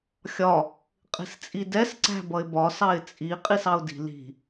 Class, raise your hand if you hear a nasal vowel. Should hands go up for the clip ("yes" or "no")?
no